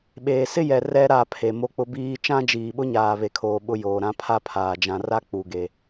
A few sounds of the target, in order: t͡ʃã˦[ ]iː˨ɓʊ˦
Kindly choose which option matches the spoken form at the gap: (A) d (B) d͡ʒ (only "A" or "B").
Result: B